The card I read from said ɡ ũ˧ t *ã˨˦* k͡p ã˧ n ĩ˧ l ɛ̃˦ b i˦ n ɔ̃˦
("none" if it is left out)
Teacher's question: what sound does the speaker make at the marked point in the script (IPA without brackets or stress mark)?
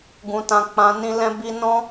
ã˧